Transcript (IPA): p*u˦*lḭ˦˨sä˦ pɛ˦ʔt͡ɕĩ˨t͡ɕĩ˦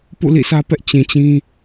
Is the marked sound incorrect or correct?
incorrect